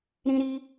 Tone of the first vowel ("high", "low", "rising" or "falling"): high